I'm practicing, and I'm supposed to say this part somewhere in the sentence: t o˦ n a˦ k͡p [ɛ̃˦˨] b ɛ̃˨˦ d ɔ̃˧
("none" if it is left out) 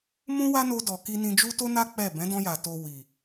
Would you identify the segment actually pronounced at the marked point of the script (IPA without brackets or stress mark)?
ɛ˦˨